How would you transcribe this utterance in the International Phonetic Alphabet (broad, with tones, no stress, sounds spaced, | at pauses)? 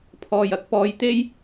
pʰ ɔː˨ j ɐ˧ k̚ p ɔː˨˧ j t̪ e˥ j